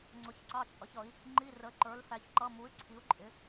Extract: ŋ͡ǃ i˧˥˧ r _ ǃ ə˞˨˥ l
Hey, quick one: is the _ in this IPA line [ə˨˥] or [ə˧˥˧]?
ə˨˥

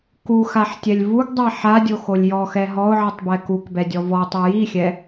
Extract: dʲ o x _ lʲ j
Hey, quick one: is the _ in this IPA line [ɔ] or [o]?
o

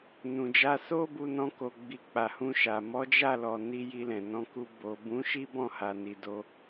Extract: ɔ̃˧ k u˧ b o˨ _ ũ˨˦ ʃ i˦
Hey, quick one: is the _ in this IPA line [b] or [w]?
b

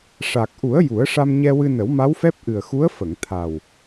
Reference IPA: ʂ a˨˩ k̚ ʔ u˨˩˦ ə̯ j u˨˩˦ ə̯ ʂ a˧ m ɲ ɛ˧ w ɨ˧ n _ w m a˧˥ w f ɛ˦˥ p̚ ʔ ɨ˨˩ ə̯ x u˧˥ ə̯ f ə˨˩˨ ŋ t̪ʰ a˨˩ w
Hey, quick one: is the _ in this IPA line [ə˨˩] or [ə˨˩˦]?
ə˨˩˦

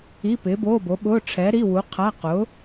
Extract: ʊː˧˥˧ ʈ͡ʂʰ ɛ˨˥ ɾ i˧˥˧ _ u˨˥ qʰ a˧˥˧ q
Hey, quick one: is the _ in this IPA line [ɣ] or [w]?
w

